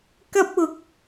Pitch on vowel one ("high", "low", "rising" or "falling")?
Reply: high